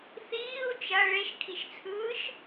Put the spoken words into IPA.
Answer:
θiːu̯ t͡ʃɐ ɭeʃkʰiʃt͡sʰɯːʃ

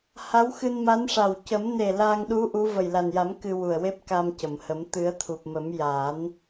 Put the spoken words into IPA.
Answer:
ha˧˥wxɨ˧nma˧˥nʂa˨˩w cə˨˩˦m ne˨˩ la˧ŋɗu˧˥ ʔu˧˥ və˨˩jla˨˩nja˨˩˦m kɨ˧wu˨˩ə̯ we˦˥p̚ka˧mcə˨˩˨mhə˨˩˦m t̪ɨ˨˩˦ə̯t̪ʰu˨˩p̚mə˨˩˦m ja˨˩˦n

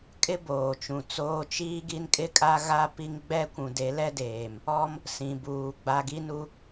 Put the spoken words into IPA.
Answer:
kʼɪ˦ boː˨t͡ʃũ˨t͡soː˦ t͡ʃiː˦ɡi˦nkʼɪ˦kʼa˦ ɣa˦pi˦ŋɡ͡bɛ˦kʷũ˨ de˨˦lɛ˦deː˨m | ɔ˦m | sĩ˨buː˨ ɡ͡ba˨ɡi˦nu˦

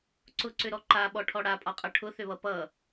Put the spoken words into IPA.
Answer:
ǀʊǀʏɾɔ ǃaɓɔʈʰɔ ɽapʼɒqʼʌ ʈʰʊθʏβʌ pʌ

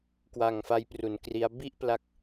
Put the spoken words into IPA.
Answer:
kwa˨˩ŋfa˦˥jpru˩˦nkri˦˥a̯ bi˥˩ʔ pla˦˥k̚

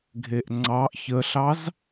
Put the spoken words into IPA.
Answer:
ɡʱeʔŋ͡ǀɑʔ çəɬɑz

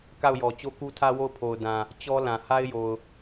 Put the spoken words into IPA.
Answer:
ka˦˨ʊ̯jɔ˨ t͡ɕo˦ku˦tʰä˦ wo˦˨ʊ̯pʰo˨ʊ̯ dã˨ | t͡ɕɔ˦ lã˨ ha˦ɪ̯ jo˨ʊ̯

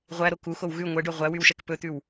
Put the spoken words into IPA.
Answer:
ʁʷæɾo kuxow ɣʉ ŋʷɛɖø ʁʷæwywʃɛk pɵt̪ʉw

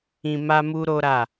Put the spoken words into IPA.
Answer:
ĩ˧ma˦mu˦ ɾo˦ɾa˦˨

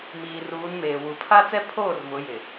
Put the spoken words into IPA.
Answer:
miː˨ruː˨˦nmeː˨wu˨ pʰa˦t͡sɛ˦pʰoː˦˨r vʊ˨˦jɪ˨

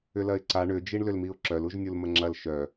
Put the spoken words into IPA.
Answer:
ʏlɐɪ̯ǀa ɳʏ d͡ʒiɳlʏlmiʊ̯ǁœl uʒnʲulməŋ͡ǁɐl ʃœ

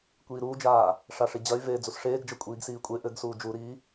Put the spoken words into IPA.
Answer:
kʷiːɾuːd͡ʒaː | ʂaʂid͡ʑɐy̯ veːd͡zusʂeːɡd͡ʒɐ kʷʼiːɡsiːkʷʼe ʔɘɡsuː d͡ʒuɾiː

